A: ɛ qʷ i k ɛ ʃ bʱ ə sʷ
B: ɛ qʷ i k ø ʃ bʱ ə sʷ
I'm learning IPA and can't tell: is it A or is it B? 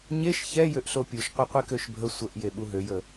B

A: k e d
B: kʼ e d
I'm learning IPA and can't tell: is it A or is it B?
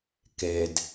A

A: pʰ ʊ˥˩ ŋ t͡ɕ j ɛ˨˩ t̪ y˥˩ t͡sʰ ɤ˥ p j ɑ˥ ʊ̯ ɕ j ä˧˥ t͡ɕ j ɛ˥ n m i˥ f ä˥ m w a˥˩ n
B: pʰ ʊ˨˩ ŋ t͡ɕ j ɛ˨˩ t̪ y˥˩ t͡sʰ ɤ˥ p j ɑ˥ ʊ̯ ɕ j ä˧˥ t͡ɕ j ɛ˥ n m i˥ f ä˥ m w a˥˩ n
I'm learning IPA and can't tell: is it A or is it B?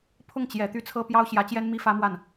A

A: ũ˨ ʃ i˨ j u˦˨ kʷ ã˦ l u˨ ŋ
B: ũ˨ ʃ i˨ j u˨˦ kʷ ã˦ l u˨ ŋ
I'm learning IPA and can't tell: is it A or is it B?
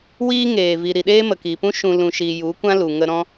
B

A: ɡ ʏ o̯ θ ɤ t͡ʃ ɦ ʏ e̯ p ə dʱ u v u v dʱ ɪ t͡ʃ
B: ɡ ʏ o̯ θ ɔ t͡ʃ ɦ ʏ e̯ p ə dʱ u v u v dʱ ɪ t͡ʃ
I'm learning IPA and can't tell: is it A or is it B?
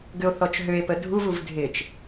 B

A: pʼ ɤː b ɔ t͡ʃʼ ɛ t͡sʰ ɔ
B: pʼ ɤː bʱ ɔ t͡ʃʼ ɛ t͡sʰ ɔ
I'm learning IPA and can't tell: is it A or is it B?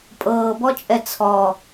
A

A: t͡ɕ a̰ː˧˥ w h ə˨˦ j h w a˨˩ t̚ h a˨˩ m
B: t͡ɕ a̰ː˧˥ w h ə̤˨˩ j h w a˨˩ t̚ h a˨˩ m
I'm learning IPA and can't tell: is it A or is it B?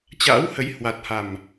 A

